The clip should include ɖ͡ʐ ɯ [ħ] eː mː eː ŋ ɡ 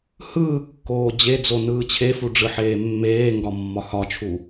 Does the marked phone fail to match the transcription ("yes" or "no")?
no